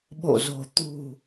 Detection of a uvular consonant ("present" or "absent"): absent